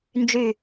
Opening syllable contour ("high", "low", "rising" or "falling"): falling